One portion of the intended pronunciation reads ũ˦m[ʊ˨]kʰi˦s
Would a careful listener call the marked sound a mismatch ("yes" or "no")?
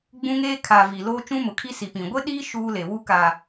no